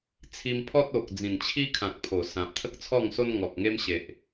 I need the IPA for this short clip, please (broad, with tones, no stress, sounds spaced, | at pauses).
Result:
t͡sʰ i˧ m pʰ ɔ˦ t̚ o˨ k̚ d͡z ĩ˨˩ n t͡ɕʰ i˦ kʰ ã˨ k̚ pʰ o˨˩ s ã˨ p̚ t̪ʰ ə˦ k̚ t͡sʰ ɔ˥˧ ŋ s o˦ n ŋ ɔ˨ k̚ ŋ e˦ m ɕ e˨ ʔ